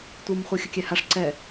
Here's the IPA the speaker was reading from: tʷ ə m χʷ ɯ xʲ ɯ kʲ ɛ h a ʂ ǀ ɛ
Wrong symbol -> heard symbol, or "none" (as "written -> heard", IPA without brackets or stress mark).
ə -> ɯ